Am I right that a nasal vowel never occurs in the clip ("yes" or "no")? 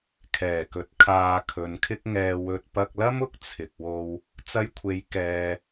yes